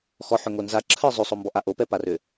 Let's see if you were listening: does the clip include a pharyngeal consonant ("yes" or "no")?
yes